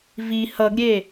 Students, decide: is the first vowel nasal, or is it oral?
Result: oral